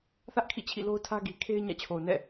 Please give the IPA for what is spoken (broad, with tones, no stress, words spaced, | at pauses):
θä˦ʔ kʰḭ˦˨t͡ɕʰḭ˦˨lo˦ʊ̯tʰä˦ ɡi˨kʰe˦ɪ̯ ɲä̰˦˨t͡ɕʰo˨ʊ̯nɛ̰˦˨